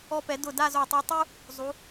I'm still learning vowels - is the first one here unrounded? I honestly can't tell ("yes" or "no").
no